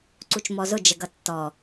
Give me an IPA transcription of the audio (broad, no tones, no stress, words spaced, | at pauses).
ǀut͡ʃmɔzʊ d͡ʒəɡʌtːɔ